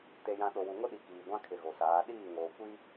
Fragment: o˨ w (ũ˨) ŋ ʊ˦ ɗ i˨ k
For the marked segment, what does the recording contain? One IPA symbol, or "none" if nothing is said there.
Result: u˨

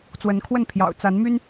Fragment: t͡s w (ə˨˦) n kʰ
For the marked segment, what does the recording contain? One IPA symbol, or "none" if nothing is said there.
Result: ə˨˦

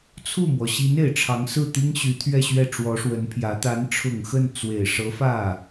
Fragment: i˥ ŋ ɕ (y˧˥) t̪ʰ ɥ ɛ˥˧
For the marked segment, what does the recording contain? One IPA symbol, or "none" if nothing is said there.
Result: y˧˥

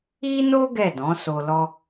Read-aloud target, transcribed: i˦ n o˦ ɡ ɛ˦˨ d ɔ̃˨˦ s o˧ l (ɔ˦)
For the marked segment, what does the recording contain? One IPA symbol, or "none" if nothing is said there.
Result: ɔ˦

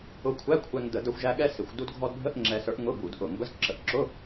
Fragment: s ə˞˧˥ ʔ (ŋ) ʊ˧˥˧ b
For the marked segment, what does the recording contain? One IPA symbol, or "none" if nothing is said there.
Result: ŋ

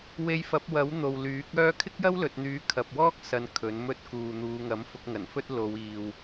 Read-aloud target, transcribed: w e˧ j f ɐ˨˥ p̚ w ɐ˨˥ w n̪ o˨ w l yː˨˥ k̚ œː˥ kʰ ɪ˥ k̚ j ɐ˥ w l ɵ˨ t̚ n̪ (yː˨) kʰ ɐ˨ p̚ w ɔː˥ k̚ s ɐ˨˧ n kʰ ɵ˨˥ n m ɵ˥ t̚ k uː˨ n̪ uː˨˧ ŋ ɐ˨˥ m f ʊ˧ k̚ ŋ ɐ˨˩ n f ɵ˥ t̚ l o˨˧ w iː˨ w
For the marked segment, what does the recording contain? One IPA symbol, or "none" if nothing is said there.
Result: yː˨˥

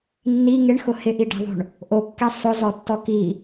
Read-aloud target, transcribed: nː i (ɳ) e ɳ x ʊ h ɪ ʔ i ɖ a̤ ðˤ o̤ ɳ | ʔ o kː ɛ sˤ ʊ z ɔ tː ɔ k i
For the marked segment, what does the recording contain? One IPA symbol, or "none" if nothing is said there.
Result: ŋ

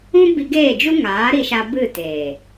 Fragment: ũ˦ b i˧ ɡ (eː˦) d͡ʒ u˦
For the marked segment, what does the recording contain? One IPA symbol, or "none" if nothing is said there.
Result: eː˦˨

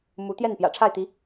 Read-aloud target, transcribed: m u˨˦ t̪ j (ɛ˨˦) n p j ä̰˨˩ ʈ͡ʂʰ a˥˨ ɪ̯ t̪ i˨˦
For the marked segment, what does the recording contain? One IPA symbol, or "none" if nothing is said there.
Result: ɛ˥˨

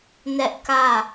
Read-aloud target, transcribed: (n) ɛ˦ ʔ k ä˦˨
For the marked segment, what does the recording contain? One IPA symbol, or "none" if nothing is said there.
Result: n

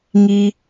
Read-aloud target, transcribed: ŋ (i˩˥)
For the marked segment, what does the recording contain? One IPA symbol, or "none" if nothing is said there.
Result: i˧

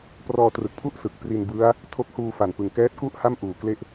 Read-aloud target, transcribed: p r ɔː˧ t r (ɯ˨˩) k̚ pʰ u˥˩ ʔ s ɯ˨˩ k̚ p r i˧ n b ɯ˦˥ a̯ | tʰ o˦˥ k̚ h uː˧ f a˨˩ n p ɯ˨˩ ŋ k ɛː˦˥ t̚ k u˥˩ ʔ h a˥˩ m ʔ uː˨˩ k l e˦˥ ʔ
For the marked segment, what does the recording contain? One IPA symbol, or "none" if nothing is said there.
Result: ɯ˨˩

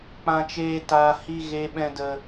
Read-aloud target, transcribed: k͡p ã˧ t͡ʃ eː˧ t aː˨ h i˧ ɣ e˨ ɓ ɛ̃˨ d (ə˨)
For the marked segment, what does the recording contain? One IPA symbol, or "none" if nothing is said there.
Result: ə˨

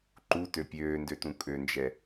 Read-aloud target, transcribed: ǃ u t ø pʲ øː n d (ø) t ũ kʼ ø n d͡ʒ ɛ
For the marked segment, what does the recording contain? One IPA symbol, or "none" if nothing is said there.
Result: ø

